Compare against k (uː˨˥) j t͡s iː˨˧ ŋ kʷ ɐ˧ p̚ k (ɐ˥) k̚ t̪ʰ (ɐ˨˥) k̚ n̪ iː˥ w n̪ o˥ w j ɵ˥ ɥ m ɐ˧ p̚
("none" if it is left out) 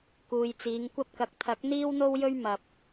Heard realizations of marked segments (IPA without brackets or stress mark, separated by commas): uː˨, ɐ˨, ɐ˨˥